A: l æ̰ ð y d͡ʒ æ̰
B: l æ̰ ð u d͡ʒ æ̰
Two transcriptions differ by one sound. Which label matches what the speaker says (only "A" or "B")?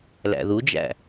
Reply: B